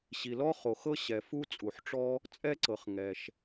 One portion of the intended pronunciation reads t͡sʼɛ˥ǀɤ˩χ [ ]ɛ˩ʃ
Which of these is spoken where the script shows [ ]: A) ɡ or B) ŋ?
B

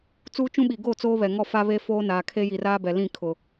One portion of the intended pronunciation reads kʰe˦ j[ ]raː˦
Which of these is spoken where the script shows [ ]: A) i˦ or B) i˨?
B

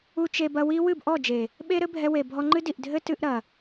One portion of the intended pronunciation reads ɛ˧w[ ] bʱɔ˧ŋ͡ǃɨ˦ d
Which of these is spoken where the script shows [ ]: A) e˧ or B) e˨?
B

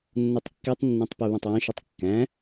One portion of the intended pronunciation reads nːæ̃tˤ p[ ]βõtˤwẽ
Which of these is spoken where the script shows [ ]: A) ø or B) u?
A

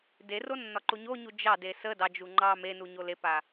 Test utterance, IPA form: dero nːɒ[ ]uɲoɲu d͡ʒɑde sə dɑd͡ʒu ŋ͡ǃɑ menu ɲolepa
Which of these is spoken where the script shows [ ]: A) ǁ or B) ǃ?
B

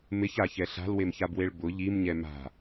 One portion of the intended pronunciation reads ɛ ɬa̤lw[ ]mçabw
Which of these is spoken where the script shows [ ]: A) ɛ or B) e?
B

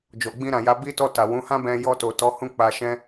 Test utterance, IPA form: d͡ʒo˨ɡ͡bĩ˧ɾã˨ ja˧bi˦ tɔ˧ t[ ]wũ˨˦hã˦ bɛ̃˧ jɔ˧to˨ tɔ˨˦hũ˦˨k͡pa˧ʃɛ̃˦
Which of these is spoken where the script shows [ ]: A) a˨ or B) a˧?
A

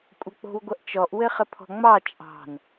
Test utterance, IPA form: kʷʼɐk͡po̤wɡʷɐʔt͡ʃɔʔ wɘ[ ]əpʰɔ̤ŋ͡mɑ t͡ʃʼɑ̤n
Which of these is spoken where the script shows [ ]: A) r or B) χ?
B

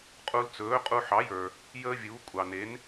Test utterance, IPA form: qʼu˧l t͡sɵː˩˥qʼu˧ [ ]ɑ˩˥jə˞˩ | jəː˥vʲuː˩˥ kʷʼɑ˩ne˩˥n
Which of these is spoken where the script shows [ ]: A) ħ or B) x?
A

